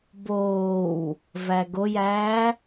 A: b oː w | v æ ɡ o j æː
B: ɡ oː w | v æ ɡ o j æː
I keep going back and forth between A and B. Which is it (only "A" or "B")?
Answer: A